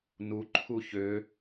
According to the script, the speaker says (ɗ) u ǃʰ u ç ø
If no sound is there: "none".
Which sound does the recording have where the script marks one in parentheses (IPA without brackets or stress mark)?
n